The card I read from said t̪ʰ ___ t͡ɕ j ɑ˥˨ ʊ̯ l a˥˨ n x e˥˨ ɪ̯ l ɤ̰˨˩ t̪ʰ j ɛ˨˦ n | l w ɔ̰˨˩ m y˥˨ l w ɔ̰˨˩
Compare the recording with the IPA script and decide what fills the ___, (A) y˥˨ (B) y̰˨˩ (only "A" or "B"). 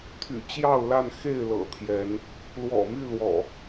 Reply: B